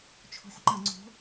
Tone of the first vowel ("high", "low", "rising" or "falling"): rising